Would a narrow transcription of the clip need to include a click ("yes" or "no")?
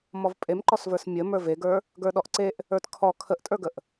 yes